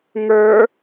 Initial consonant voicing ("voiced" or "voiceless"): voiced